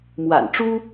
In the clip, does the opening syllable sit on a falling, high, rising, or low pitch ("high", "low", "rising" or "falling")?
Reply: low